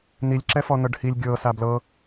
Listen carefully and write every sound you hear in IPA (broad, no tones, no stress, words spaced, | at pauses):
nilʲ ǁɛfɔnɤɖhilʲ ɡʲɤ sablɤ